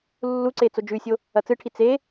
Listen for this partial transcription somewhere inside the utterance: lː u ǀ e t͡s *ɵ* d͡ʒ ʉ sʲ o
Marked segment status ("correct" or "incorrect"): incorrect